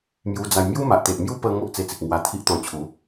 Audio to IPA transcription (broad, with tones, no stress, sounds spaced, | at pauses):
m j u˧ d͡z a˧ j m j u˦ m a˨ ʔ t̪ e˨ ʔ m j u˦ p ə˧ ŋ o˦ ʔ t͡s e˧ t͡s i˨ k̚ ŋ w a˧ t̪ʰ i˦ ʔ t̪ ɔ̃˧ t͡ɕʰ u˨˦